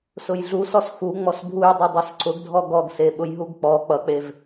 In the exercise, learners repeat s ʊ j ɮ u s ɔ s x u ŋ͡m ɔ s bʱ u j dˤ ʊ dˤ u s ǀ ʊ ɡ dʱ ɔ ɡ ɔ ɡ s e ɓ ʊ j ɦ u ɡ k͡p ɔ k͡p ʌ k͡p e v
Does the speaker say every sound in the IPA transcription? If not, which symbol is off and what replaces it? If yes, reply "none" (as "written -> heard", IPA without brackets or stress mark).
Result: none